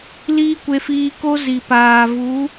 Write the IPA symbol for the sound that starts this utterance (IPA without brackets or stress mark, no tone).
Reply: l